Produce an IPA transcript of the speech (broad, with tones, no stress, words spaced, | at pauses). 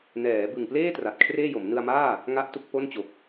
nɛː˩˦ bɯ˨˩ŋpleː˥˩ tra˨˩t̚kʰreː˥˩jo˩˦m nɯ˧a̯maː˥˩ | ŋa˥˩ʔtu˥˩k̚po˥˩nt͡ɕo˨˩k̚